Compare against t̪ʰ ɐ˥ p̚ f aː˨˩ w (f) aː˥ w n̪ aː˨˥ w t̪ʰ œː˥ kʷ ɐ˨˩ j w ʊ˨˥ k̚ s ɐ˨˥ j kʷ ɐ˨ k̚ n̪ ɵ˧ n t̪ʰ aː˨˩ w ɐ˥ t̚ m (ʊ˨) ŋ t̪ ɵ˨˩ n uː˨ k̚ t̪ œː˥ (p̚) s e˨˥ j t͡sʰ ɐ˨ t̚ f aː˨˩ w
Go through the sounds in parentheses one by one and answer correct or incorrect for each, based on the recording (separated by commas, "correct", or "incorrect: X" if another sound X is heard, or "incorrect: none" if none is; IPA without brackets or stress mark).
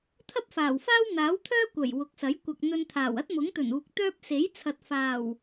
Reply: correct, incorrect: ʊ˨˥, correct